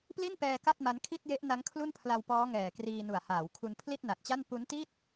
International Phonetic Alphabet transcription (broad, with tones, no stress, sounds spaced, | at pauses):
p l i˥˩ n p ɛː˧ k a˥˩ t̚ m a˦˥ n kʰ i˥˩ t̚ j e˦˥ ʔ n a˦˥ ŋ kʰ l u˥˩ n pʰ l a˧ w p ɔː˦˥ ŋ ɛː˨˩ k r iː˧ n u˨˩ a̯ h aː˩˦ w kʰ u˧ n pʰ l i˥˩ t̚ n a˨˩ t̚ t͡ɕ a˥˩ n p u˦˥ n t i˥˩ t̚